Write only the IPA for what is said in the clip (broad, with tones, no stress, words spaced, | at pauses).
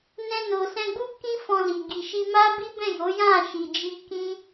nɛ̃˧no˨sɛ̃˧ɡ͡bu˦ kĩ˦fɔ̃˧li˨ ɡi˨ʃi˧ ma˦bi˦bɛ̃˦˨jo˨˦ jã˦˨ʃi˨d͡ʒi˧ kĩ˦